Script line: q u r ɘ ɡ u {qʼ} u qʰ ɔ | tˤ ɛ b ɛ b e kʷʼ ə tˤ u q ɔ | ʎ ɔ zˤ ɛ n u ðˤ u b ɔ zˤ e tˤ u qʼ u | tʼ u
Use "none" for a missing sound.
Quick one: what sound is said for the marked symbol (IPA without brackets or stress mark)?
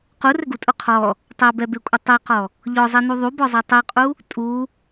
tʼ